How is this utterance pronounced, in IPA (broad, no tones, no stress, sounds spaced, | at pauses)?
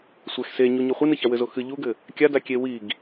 sʷ ɛ x s e ɲ u ɲ o χʷ ɨ n ɨ ç a w ɘ z o x ɨ ʎ u ɡ ɘ | kʲ a d a kʲ e w i ɡ